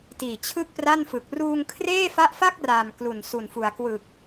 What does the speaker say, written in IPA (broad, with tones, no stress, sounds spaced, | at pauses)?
t iː˨˩ t͡ɕʰ ɯ˥˩ k̚ p r a˥˩ n f ɯ˨˩ k̚ r uː˧ ŋ kʰ r eː˥˩ f a˦˥ ʔ f a˥˩ k̚ r a˨˩ m k l u˨˩ n s u˨˩ n f u˨˩ a̯ k w ɯ˨˩ k̚